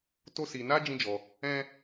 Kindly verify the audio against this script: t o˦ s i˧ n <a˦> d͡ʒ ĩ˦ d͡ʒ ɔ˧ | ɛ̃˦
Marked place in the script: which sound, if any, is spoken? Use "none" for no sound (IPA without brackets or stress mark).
a˦